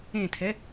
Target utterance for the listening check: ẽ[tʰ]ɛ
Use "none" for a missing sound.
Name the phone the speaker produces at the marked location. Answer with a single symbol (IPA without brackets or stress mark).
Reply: tʰ